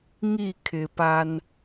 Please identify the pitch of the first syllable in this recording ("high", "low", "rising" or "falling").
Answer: falling